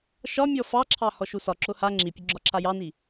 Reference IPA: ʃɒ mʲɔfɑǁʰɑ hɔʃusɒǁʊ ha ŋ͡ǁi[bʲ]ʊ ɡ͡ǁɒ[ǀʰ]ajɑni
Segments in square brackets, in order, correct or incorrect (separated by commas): incorrect, incorrect